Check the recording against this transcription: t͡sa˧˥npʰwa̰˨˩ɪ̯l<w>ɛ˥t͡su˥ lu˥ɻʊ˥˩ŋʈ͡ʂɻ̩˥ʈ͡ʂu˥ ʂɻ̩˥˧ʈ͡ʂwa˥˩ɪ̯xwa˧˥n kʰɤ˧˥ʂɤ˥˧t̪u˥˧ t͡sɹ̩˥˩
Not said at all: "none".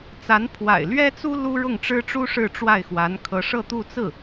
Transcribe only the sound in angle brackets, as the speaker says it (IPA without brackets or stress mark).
ɥ